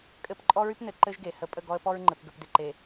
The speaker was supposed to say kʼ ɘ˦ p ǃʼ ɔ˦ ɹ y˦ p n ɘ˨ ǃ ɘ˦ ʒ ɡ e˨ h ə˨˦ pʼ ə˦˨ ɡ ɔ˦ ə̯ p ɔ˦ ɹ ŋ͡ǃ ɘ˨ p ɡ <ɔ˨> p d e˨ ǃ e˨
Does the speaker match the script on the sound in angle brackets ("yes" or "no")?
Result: no